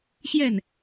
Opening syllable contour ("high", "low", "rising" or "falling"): falling